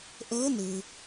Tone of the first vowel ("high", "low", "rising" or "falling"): rising